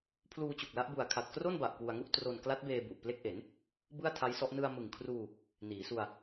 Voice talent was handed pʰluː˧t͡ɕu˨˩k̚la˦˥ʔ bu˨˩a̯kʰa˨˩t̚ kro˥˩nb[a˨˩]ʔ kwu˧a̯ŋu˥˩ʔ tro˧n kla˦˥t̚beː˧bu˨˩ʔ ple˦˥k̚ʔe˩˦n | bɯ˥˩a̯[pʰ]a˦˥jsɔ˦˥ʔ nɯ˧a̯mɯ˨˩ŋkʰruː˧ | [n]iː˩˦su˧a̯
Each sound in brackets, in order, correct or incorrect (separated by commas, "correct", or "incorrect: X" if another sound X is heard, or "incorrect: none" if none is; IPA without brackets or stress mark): correct, incorrect: tʰ, correct